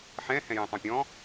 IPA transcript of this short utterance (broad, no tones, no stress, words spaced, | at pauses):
ħɛ̃ hɛ̃jɛ̃tˤõpʲɔ̃